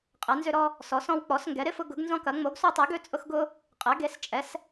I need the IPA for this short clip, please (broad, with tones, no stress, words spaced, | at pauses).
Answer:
qʼɛ˩˥nzʏ˦ɾɔ˦ | sɔ˩˥sɔ̃˦wk͡pɔ˩˥s ŋɡɛ˩˥ɾɪ˦fʊ˦ ɡʊ˩˥ɡnzɔ̃˦kɐ˩˥ ŋ͡mo˩˥ɡso˦tˤe˩˥ ɡø˦t͡sʼʊ˦xɡʊ˦ | qʼɛ˩˥ɡe˩˥st͡ʃʼɛ˩˥s